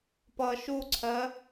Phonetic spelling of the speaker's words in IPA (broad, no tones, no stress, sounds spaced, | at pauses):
p ʌ ʃ u ǀʰ ɜ